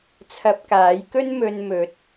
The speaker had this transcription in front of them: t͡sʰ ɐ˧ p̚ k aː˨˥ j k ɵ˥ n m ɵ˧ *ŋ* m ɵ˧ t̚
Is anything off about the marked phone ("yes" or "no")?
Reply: yes